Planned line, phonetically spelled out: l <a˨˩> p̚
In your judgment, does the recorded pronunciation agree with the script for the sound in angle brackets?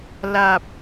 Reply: yes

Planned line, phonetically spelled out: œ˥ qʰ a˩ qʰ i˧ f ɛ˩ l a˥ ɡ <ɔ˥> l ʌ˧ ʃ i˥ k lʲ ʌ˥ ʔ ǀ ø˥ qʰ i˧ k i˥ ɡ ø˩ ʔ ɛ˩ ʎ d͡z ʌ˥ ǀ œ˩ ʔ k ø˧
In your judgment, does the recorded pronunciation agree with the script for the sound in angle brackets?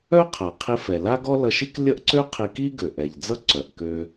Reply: yes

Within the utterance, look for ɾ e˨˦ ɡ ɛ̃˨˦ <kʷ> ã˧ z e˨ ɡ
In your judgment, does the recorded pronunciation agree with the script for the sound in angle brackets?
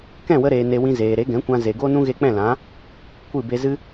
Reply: yes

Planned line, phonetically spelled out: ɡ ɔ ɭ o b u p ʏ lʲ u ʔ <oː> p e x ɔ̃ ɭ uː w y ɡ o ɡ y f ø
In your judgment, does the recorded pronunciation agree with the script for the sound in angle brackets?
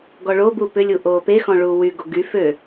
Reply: yes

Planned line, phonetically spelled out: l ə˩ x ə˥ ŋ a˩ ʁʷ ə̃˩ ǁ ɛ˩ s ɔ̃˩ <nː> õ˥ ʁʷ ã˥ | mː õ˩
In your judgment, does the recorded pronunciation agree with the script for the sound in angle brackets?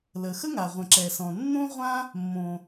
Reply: yes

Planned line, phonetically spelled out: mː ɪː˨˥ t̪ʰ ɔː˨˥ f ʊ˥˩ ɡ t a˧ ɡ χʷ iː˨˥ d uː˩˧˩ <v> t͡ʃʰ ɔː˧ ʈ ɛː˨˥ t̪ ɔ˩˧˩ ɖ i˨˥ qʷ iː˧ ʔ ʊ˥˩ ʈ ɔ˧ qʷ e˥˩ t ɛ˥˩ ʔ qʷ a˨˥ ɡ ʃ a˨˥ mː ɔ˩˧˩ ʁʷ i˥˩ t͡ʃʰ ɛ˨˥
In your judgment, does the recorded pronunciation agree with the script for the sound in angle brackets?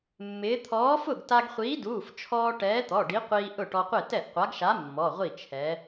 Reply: no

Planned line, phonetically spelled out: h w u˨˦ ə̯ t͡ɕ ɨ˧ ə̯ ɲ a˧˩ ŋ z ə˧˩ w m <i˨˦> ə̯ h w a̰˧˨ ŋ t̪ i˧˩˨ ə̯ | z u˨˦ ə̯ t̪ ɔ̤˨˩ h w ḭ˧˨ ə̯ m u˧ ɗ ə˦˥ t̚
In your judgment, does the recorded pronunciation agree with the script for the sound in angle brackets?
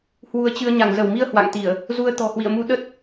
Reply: no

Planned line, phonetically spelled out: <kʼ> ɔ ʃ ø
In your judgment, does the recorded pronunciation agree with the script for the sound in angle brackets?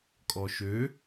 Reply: yes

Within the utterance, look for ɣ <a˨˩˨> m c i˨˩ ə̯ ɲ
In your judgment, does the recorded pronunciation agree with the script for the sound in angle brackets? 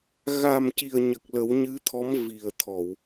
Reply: no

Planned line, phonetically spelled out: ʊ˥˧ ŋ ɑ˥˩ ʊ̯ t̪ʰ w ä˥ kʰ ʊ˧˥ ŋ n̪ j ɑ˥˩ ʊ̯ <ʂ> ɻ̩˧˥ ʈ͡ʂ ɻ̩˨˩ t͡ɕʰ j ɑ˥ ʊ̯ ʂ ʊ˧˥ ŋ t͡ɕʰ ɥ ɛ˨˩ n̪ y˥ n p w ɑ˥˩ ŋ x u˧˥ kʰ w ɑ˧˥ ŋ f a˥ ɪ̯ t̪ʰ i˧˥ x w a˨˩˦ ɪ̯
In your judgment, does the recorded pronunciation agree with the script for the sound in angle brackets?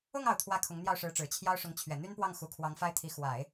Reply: yes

